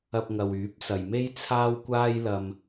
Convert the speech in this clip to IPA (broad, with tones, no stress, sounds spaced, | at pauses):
ɐ˧ p̚ ŋ ɐ˨ w yː˨˥ p̚ s ɐ˨ j m e˥ j t͡sʰ aː˥ w kʷ aː˥ j l ɐ˥ m